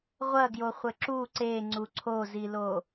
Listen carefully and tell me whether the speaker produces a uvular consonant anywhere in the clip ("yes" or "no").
yes